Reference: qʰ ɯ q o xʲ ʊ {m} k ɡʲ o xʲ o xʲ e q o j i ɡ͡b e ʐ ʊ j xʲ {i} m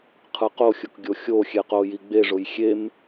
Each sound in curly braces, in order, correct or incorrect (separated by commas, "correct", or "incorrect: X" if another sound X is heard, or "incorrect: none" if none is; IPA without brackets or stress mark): incorrect: none, incorrect: e